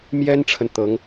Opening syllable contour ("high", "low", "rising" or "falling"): high